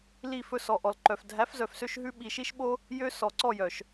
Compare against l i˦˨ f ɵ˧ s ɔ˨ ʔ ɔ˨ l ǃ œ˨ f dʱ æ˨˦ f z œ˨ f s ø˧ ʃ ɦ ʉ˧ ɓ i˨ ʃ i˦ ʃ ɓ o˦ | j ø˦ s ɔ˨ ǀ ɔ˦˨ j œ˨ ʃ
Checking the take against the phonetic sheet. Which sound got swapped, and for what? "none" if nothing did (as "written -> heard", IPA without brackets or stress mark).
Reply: none